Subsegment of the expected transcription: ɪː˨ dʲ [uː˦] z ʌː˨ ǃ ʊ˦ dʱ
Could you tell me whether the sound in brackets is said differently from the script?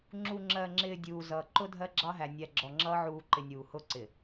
yes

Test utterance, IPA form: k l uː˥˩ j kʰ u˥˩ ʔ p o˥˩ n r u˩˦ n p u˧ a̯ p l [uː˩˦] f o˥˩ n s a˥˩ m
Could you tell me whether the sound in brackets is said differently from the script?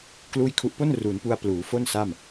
no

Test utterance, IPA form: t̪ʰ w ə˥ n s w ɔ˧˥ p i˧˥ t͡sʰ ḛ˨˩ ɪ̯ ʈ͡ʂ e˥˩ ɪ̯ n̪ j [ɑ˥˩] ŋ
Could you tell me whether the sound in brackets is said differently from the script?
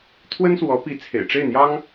yes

